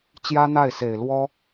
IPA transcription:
t͡ɕ j ä˥ n̪ a˥˩ ɪ̯ s e˨˩ ɪ̯ l w ɔ˥

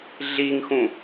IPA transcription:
ɮ i ŋ x ũ

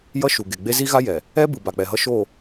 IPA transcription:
j ʌ˦ ʃ u˨ ɡ e˨ ɡ͡b e˦ z i˦ ɣ a˦ j ɛ˨ | ɛ˦ b ɯ˨ b a˨ k͡p ɛ˨ ɦ ʌ˦ ʃ o˦˨

